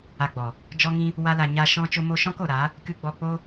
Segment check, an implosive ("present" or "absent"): absent